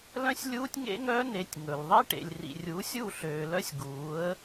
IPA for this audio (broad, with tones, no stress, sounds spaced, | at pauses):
l œ̃˦ sʲ lʲ uː˦ tʲ ŋ ḛ˦ ŋ œː˦ n e˨ tʲ ŋ ɵ˨ l ðˤ i˦ ʈ ḛ˨ lʲ r ḭ˨ rʲ uː˨˦ sʲ u˦˨ ɬ øː˨ l œ˦ sʲ ɡ uː˨˦ ə̯